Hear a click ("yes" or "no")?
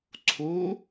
yes